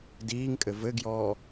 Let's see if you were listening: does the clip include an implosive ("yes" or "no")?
no